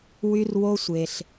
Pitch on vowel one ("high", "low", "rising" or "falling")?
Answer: high